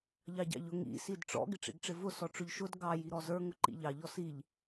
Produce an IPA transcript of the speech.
ʎ ɑ ɟ ɑ̰ ʎ ʊ ŋ ḭ s i d ʈ͡ʂ ɔ̰ ɡ ɪ ʈ͡ʂ ḭ ɡ ʈ͡ʂ ɪ v ʊ s ɔ ʈ͡ʂ ʊ ʎ ʃ ʊ d ɡ ɑ j i ɾ ɔ z ə˞ ŋ ʊ ǃ ḭ ʎ ɑ ʎ ɔ s i ʎ

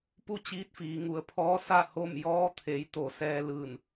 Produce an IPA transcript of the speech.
p u˧ t͡ɕ iː˧˥ t̚ f iː˩˧ ŋ u˩ ə̯ pʰ ɔː˧˥ s a˥˨ h o˥˨ m j ɔː˧˥ t̪ʰ e˩˧ j t̪ o˩˧ s ɛː˧ l ɯː˧˩ n

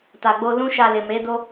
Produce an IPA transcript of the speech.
t a˨ ɡ͡b o˧ l ũ˦ ʃ a˧ l e˨ m e˨˦ d o˦

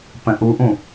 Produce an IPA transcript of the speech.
p ə̃ ʔ u ʔ ũ

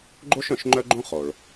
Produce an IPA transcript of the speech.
ɡ͡ǃ o˥ ʃ œ̃˩ ʃ ŋ͡ǃ œ˥ ɡ͡ǃ õ˥ χ o˩ ɭ

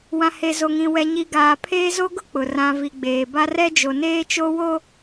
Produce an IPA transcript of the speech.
w ã˨ h e˨ z o˨ ŋ ĩ˨ w ɛ˨ ɲ i˨ ɡ aː˨ pʰ eː˦ z o˦ ɡ ʊ˦ k͡p ʊ˨ r ã˨ v i˨ ɡ͡b eː˨ b a˦ r ɛ˦ d͡ʒ o˨ n eː˦ t͡ʃ o˦ w o˦

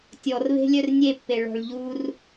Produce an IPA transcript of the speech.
tʲ ɔ r β e̤ lʲ œ r nʲ e pː e ɭ ɔ̤ ɭ ʎ u r

